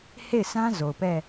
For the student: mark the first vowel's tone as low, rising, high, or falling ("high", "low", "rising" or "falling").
falling